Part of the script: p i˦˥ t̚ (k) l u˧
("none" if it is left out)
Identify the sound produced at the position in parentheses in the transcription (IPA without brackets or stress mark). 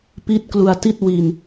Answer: k